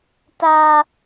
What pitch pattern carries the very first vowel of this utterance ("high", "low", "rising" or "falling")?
high